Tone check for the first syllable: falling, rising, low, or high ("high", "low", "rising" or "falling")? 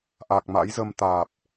low